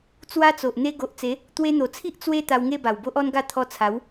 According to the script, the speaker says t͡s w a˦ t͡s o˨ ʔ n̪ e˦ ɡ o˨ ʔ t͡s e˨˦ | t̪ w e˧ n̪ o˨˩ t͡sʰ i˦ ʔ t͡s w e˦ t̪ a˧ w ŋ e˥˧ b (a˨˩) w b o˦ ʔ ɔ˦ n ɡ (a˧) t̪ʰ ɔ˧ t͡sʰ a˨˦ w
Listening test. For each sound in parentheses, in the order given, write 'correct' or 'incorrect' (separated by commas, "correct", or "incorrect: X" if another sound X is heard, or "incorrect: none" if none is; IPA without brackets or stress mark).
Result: correct, incorrect: a˥˧